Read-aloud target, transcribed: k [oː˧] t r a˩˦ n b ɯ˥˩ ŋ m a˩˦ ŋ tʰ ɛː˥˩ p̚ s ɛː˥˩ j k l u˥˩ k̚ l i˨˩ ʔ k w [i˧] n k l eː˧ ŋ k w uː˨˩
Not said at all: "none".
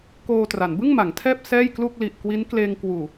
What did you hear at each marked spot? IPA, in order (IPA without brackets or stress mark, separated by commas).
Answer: oː˧, i˦˥